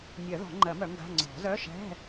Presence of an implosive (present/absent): absent